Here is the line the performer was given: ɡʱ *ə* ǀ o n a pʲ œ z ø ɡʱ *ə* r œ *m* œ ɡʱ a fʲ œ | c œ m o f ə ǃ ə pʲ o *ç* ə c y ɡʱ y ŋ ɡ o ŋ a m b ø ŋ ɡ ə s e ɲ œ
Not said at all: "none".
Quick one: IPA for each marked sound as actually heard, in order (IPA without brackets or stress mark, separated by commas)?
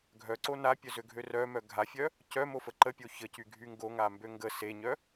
œ, ø, m, ç